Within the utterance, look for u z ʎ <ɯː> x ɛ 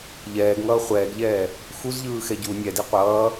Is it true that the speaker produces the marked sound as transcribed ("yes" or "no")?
yes